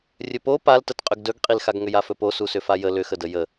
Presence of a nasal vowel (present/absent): absent